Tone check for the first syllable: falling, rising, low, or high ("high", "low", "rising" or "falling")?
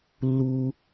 high